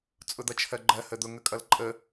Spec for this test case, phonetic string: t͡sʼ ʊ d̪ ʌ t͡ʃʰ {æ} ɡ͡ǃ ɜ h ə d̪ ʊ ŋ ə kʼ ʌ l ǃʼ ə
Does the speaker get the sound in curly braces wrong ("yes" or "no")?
yes